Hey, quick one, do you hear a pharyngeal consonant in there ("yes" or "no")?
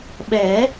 no